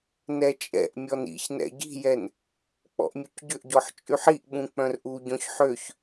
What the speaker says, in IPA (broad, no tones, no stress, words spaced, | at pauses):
nɛt͡ʃʼɛ̰ʔmʲɔn ḭçnɛ̰ ɟi̤jɛn | k͡pɔ̰ʔmʲucɟʏʔɟɔħ t͡ʃʼyħiʔɓũ k͡pœ̃rʔuɟɔ̃ç ħøç